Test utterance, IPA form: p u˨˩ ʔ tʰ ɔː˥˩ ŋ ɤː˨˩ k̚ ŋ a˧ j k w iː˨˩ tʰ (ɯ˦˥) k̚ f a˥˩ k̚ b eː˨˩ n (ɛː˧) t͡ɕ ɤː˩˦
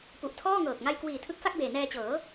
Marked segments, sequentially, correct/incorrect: correct, correct

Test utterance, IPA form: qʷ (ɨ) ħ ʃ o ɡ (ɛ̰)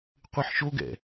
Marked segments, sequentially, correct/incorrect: correct, correct

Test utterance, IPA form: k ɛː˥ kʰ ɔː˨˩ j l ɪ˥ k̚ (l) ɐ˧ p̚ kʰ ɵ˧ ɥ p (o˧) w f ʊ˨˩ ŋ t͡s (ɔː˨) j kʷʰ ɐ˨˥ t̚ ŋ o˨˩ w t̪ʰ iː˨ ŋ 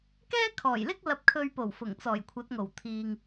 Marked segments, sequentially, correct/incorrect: correct, incorrect: o˨˩, incorrect: ɔː˨˩

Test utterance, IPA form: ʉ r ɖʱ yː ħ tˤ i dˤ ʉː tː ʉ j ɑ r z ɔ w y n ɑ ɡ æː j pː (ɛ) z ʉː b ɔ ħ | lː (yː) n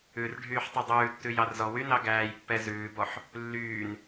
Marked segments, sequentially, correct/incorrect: correct, correct

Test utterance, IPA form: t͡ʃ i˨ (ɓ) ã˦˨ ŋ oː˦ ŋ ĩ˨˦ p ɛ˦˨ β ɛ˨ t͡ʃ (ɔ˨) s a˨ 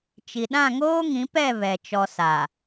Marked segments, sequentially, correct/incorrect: incorrect: ɗ, correct

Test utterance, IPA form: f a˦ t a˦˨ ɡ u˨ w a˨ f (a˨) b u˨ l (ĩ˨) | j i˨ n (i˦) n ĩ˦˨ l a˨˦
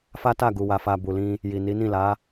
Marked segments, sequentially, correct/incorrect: correct, incorrect: ĩ˧, incorrect: i˨˦

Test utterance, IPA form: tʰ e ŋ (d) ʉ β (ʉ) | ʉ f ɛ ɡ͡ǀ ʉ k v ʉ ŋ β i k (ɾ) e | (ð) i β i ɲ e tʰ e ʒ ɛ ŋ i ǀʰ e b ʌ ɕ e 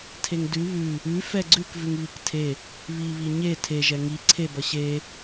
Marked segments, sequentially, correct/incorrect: correct, correct, incorrect: tʰ, incorrect: β

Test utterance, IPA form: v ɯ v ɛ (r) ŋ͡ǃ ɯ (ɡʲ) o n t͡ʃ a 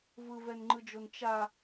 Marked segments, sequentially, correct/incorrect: incorrect: n, incorrect: d͡ʒ

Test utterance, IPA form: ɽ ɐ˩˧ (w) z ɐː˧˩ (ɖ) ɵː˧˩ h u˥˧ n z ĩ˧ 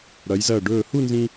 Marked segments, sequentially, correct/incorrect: incorrect: j, correct

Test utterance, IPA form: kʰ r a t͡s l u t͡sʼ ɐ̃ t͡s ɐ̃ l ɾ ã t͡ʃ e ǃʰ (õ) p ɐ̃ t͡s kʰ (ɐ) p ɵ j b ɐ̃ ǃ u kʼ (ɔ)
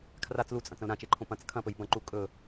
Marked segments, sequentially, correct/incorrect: correct, incorrect: ɐ̃, incorrect: ɵ

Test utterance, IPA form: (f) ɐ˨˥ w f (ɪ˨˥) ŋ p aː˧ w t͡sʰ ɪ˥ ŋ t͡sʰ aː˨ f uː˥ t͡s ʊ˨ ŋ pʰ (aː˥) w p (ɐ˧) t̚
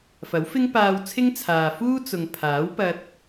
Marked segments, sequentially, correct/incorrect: correct, incorrect: ɪ˥, incorrect: aː˨˥, correct

